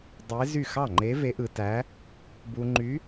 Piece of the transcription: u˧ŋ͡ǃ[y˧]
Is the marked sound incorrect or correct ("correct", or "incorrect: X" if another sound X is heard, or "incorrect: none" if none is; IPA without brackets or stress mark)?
incorrect: y˧˥